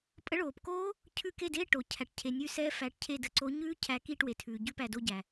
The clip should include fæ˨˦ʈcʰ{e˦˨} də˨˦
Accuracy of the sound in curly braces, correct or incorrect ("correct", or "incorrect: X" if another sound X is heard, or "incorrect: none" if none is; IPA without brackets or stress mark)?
correct